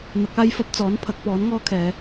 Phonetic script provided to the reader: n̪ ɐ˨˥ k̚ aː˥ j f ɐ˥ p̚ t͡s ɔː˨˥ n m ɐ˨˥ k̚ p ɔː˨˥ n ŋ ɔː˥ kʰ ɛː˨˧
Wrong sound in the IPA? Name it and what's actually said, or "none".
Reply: m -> pʰ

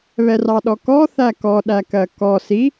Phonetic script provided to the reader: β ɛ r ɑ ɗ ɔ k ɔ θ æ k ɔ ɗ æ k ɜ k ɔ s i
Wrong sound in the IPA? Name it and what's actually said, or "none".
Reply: none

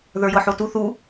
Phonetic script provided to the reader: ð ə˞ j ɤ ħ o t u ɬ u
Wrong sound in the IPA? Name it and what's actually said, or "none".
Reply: ɬ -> θ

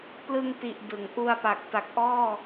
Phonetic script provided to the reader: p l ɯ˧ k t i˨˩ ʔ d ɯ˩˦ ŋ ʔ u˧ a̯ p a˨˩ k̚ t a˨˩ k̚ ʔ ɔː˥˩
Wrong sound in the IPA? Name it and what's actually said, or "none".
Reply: k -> ŋ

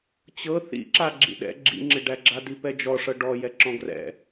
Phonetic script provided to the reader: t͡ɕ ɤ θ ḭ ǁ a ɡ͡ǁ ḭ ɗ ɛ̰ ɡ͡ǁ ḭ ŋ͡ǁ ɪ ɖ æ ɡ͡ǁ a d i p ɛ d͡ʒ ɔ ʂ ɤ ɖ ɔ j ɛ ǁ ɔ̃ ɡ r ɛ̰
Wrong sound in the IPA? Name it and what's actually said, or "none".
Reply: none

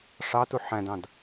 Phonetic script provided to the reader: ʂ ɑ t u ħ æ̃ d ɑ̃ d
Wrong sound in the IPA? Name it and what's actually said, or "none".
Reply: none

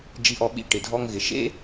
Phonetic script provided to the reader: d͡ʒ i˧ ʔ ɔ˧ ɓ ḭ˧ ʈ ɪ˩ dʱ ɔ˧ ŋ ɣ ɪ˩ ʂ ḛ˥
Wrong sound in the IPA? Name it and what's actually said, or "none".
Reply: ʂ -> ʃ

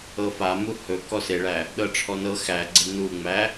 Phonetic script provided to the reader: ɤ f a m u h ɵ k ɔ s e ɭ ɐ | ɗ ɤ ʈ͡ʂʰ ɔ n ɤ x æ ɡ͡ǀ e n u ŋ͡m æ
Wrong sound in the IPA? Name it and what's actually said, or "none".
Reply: ɐ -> æ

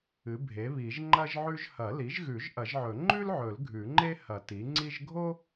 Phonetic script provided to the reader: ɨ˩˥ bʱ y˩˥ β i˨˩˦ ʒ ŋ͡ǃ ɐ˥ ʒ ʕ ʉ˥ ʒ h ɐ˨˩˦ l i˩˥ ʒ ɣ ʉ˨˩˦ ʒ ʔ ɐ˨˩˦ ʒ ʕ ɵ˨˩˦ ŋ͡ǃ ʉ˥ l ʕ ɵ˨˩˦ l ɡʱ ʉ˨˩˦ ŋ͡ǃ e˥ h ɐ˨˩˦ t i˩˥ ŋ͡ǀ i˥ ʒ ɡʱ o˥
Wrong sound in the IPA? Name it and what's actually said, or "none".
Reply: y˩˥ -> e˩˥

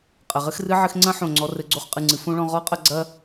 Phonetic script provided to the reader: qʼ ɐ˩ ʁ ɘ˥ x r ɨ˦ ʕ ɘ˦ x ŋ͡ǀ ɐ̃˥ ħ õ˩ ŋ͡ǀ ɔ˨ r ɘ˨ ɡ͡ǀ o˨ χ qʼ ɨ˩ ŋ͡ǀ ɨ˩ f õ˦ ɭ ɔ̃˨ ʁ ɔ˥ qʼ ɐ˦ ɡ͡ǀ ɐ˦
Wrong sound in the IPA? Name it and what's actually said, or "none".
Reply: none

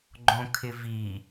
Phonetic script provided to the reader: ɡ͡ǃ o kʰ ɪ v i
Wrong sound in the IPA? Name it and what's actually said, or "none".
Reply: o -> õ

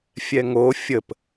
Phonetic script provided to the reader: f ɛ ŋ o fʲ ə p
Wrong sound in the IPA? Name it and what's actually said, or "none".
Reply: f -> fʲ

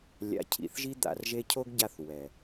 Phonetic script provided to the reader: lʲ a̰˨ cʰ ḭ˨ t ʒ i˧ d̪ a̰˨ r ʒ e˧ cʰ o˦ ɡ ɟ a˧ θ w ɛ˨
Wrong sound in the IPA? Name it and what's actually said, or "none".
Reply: t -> θ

